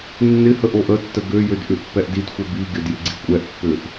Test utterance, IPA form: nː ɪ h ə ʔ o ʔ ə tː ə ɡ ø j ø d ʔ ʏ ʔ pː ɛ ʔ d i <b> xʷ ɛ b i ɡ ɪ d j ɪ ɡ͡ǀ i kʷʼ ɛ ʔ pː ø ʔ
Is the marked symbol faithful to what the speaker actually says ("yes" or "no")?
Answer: no